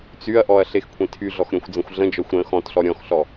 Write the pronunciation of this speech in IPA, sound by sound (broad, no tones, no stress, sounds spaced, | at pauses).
t͡s y ɐ̯ ʔ ɔ ɐ̯ ɬ e x kʷʰ ẽ tʰ y ɮ ɔ x ɾʲ ɔ̃ xʷ d͡z ə̃ xʷ ɮ ə̃ d͡ʒ ɔ xʷ ɾ ə̃ x ɔ̃ t ɬ ɔ ɾʲ ɔ̃ x ɬ ɔ